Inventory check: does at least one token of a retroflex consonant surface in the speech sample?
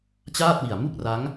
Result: no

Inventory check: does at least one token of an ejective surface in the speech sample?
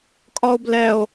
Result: yes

